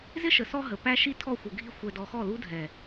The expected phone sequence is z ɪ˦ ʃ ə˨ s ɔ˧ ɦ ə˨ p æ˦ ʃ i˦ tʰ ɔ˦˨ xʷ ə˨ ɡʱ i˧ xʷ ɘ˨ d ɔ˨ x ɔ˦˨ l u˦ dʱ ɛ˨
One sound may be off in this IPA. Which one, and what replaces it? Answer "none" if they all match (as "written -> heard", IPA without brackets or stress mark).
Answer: ɘ˨ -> ɛ˨